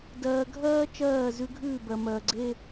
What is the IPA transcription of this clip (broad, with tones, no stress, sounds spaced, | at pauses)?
d ɜː˨ ɡʱ ɜː˦ t͡ʃ ɜː˦˨ z ʉ˦ ɡʱ ʉː˦˨ b ɜ˨ m ɜː˨ ɡ͡ǀ e˦